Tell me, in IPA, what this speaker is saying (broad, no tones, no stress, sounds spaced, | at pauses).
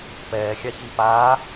p ɛː xʲ a ç i p aː